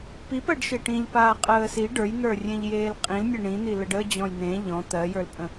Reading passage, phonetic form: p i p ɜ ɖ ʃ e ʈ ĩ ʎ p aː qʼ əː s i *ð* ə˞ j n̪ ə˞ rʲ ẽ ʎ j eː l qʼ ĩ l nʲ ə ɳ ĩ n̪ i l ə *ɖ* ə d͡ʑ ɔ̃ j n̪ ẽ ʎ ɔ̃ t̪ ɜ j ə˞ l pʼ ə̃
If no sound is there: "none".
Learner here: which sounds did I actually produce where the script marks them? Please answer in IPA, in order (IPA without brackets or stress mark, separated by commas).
ɖ, ɖ